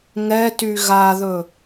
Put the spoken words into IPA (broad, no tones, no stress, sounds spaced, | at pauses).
ŋ ɛ t y ɣ a ð ɵ